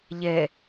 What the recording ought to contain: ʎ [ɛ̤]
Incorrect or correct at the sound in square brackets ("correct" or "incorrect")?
incorrect